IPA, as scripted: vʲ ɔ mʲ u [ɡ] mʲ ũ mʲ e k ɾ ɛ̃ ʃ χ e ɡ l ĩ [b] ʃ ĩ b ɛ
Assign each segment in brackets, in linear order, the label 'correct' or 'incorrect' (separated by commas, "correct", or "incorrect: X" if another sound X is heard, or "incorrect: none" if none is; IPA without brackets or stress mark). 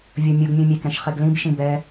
correct, correct